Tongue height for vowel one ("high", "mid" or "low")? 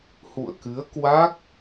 high